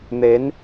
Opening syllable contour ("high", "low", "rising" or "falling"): rising